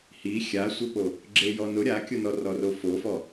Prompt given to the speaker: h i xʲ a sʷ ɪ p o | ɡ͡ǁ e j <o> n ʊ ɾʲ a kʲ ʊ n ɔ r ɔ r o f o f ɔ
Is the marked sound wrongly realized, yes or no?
yes